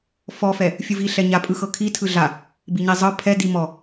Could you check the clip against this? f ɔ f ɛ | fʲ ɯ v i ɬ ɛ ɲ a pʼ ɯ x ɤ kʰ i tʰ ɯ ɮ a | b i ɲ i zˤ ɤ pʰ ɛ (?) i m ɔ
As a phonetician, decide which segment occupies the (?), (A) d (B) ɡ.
A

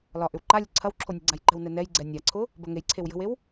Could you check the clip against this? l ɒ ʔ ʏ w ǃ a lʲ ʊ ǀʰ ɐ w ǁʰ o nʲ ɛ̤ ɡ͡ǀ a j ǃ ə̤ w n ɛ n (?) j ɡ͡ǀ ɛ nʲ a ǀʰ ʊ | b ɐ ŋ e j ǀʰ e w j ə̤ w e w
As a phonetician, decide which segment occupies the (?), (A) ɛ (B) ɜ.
A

